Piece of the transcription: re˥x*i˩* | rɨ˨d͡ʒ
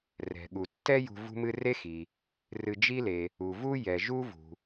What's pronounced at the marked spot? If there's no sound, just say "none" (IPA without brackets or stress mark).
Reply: i˩